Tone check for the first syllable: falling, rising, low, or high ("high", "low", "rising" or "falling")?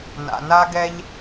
low